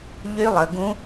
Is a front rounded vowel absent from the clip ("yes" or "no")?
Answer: no